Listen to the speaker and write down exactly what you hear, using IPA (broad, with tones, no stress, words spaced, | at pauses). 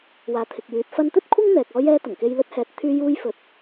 waː˨˥t̪ʰɪ˨k̚jyː˨˥t̚ fɐ˧nt̪ɵ˥t̚kʷʰɐ˥ŋn̪ɛː˨k̚ ɔː˧jɛː˧ t̪ɐ˨˩ŋke˧jlɵ˥t̚ hɛː˨t̚t̪ʰyː˧ juː˧jfɵ˨˥t̚